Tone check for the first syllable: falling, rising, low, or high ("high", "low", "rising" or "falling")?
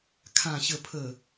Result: low